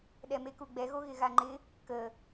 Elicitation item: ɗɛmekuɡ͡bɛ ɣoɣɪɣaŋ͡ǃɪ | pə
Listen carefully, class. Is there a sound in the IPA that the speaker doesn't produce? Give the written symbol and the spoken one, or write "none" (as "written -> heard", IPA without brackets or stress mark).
p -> k